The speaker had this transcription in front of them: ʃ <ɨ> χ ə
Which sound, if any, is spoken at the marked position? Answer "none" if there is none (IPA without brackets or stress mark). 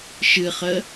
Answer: ɨ